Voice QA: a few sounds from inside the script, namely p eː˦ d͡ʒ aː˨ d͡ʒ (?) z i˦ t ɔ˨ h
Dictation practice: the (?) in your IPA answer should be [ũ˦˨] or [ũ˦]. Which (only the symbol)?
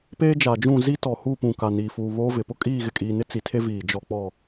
ũ˦˨